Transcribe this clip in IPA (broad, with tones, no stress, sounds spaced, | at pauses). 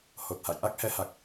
h o˨˩ t̚ h a̰˧˨ j ʔ a˦˥ k̚ h ɛ˨˦ h a˨˩ k̚